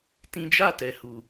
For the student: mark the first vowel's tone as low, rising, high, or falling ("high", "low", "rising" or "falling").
high